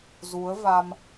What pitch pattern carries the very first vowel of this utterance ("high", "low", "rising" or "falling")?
rising